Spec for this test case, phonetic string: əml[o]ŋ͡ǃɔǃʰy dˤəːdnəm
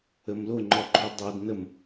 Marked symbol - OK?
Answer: yes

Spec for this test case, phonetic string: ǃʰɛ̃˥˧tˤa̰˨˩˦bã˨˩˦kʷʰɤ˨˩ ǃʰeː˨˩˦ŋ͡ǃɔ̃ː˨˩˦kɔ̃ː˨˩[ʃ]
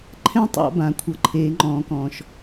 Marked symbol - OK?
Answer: yes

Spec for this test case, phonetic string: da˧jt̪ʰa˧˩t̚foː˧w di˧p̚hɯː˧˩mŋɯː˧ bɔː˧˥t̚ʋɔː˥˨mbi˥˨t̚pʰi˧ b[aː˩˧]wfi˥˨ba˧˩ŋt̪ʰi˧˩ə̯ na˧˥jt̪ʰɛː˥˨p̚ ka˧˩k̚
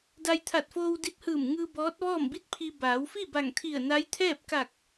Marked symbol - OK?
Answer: yes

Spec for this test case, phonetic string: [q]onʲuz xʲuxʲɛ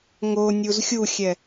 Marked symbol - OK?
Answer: no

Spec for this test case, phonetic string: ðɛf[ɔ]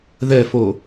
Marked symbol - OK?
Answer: no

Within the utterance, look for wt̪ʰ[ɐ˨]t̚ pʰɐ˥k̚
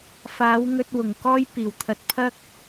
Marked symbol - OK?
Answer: no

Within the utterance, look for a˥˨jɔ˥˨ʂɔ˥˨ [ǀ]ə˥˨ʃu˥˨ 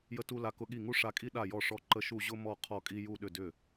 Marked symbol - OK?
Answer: no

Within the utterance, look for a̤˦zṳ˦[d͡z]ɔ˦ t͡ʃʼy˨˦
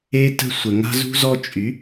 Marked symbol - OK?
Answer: no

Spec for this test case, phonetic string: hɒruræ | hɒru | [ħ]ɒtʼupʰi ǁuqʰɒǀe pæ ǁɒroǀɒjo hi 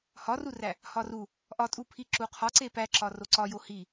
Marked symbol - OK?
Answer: no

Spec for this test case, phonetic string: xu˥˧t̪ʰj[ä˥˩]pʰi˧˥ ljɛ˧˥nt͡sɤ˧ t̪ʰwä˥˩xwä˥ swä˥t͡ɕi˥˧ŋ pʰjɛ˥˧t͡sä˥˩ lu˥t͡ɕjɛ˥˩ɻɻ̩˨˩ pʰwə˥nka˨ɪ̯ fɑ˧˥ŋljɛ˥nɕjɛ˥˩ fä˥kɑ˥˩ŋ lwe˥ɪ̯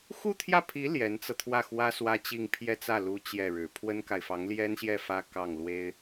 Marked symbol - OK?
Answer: yes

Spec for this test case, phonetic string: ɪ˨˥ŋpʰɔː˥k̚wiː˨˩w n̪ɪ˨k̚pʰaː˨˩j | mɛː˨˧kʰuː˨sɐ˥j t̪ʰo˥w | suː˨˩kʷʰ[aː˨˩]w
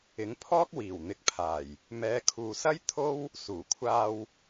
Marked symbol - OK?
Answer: no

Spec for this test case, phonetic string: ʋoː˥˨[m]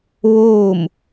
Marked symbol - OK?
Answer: yes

